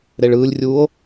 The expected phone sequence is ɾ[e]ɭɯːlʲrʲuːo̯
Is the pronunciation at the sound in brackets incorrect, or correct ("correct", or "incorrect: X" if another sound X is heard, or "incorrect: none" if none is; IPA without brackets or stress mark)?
correct